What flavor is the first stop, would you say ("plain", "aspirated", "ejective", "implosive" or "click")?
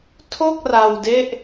aspirated